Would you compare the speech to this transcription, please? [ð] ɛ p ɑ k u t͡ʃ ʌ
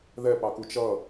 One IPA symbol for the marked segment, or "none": ð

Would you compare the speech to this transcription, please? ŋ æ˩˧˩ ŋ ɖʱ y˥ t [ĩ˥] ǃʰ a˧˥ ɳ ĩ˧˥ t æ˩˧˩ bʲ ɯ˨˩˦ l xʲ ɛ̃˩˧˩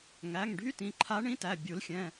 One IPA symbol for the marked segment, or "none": ĩ˩˧˩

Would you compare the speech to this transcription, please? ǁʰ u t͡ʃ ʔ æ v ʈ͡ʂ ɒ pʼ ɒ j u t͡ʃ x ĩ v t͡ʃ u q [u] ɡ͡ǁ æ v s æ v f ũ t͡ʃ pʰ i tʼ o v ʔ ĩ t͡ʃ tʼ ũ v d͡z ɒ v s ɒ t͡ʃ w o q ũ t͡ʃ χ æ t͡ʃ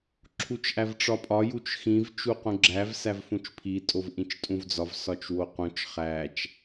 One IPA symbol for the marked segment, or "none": ũ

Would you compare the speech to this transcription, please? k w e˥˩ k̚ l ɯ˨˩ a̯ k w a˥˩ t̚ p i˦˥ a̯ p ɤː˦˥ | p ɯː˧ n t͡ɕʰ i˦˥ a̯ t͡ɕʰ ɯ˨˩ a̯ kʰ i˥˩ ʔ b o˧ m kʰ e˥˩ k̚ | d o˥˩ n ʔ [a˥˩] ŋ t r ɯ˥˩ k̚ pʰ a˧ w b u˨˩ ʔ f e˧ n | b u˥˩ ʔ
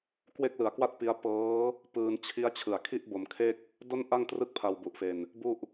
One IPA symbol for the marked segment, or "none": a˥˩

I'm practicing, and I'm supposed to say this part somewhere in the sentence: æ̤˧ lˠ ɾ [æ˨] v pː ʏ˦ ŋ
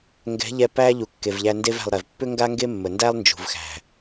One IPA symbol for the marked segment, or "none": ɛ˨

